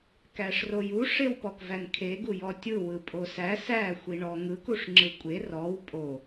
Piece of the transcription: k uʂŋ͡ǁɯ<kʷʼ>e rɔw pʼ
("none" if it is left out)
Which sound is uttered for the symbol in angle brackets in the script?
kʷʼ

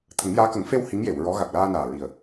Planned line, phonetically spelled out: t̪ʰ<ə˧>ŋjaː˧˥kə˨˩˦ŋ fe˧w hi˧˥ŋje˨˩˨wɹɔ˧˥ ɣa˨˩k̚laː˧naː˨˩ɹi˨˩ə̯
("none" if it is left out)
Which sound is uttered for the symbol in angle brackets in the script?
ə˨˩˦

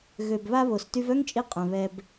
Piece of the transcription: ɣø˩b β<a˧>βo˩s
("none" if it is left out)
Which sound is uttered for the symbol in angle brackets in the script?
a˧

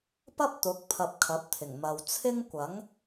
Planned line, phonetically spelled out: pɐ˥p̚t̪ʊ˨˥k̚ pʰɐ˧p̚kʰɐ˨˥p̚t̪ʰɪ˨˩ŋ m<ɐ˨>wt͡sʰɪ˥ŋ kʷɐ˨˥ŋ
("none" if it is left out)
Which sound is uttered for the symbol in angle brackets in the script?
ɐ˨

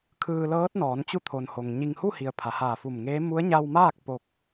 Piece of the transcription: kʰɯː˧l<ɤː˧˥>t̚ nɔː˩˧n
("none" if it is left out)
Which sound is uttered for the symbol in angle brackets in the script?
ɤː˧˥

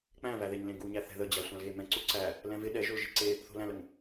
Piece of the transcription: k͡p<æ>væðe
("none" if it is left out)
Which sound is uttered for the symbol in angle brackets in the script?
æ̃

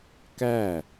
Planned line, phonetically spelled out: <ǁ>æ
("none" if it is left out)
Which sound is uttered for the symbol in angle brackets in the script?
k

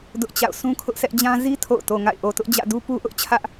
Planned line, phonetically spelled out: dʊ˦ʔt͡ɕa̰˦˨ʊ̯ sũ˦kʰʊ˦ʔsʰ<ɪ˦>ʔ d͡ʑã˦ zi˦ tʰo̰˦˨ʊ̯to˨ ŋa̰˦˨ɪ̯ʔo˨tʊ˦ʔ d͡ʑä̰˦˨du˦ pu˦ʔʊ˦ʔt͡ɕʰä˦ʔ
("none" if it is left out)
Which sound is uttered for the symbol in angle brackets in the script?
ɛ˦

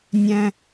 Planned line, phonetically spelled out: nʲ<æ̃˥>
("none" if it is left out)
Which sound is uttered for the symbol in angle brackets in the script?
æ̃˥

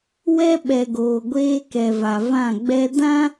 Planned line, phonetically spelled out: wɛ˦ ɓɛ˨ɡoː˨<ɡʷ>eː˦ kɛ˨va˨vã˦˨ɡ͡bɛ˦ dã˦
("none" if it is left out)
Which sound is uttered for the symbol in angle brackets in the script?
ɡʷ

